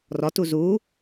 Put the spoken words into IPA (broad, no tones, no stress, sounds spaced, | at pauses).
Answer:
r ɒ t u z u